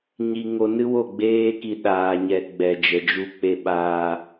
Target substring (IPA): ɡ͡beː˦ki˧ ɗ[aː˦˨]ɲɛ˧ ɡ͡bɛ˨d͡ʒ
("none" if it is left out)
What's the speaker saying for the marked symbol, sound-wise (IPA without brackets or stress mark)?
aː˧